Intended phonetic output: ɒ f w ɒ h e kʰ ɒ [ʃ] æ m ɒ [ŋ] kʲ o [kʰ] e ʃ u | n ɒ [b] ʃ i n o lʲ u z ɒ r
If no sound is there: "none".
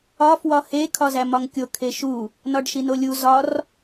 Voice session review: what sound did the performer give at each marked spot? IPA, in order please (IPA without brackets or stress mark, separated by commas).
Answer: z, ŋ, kʰ, ɖ